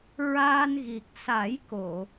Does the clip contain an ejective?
no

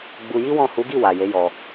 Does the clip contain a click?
no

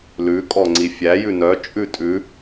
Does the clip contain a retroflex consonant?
no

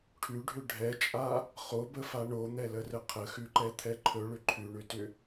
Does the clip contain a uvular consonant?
yes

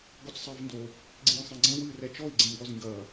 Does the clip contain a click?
yes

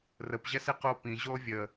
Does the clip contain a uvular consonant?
yes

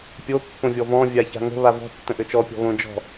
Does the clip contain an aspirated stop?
no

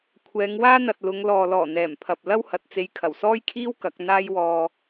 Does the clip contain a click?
no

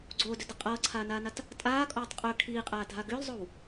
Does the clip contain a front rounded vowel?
yes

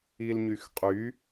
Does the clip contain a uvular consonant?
yes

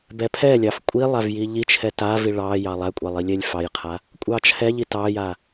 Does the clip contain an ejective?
yes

